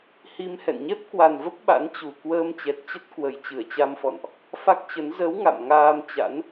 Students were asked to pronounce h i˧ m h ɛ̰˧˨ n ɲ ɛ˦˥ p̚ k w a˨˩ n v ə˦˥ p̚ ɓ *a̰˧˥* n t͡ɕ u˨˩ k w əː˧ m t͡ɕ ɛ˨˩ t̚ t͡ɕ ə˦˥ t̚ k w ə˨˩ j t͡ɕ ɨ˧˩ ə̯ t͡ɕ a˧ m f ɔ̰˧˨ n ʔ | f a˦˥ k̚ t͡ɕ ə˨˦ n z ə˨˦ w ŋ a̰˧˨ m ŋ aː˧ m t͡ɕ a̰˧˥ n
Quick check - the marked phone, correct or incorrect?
correct